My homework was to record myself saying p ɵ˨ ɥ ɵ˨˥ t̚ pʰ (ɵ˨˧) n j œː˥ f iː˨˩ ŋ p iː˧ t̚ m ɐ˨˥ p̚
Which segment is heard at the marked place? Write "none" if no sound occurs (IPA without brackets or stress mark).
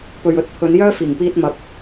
ɵ˨˧